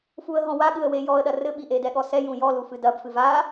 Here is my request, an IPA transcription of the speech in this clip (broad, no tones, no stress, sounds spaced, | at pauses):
f u ə̯ ɦ ɔ̃ w a ɠ ɨ ə̯ w e j ɔ ə̯ ɗ ɐ r ɘ ɓ i ʔ e d ɛ ɠ ɔ s ɛ j ũ j ɔ l u f ɨ d ɐ b f ɨ v a